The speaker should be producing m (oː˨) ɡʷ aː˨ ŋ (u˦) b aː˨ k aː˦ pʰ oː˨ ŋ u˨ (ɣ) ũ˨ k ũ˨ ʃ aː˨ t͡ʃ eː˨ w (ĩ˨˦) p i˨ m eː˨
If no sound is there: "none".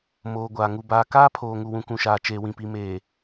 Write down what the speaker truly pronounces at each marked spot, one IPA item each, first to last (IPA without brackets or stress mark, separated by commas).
oː˨, u˨, w, ĩ˨